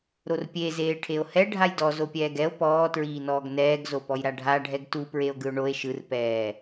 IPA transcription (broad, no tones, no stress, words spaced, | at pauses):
ɾorpʲe zeːʈʰeo̯hɛ ɖʱajdɔzopʲɛːɡ ɛo̯ pɔːtɹiːnɔːɡ nɛːɡzopɔj ɾaɖʱaɖʱɛɡ tupɹeo̯ ɡɯo̯ɳoe̯ ʃɯr pɛː